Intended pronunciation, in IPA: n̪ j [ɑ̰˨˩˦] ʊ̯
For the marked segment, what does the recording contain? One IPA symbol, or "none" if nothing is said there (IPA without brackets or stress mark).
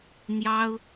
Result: ɑ˥